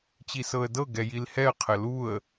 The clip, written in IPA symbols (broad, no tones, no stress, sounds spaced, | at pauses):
t͡ɕ i s ɤ ə̯ d ɤ ɡ ɛ j i l h ɛ ə̯ qʰ ə l u ə̯